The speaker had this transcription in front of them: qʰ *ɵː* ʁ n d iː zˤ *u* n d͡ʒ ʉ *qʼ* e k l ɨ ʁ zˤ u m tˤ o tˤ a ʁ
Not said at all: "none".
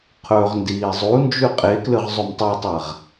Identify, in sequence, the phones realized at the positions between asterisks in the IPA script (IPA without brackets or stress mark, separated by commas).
ɵː, u, qʼ